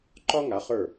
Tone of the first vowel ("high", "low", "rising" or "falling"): high